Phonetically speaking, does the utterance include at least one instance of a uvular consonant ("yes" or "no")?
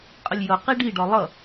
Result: yes